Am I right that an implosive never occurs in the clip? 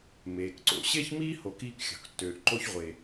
yes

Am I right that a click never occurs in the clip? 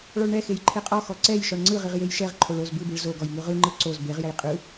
no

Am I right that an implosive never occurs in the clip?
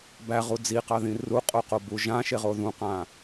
yes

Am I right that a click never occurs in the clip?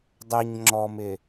no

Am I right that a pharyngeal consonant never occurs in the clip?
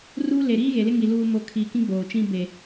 yes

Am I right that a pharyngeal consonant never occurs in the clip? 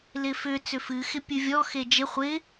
yes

